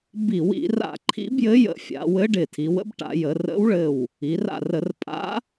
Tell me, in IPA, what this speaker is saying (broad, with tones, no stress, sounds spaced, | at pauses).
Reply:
b i˧˩˧ w ḭ˧˩˧ r a̰˧˩ ǃʰ ḭ˧˥ b j ɘ˧˥ j ə̰˧˩˧ fʲ a̰˩˧ w ɘ˧˥ ɖ ɪ˧˩ tʰ i˩˧ w ə̰˧˥ b ʈ a̰˧˩˧ j ə˩˧ r ə̰˧˥ w ɭ ɘ˧˩ w | i˩˧ r a̰˧˩ r ə˧˩˧ r pʼ a̰˧˥